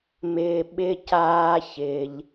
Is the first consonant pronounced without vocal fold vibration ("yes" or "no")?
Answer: no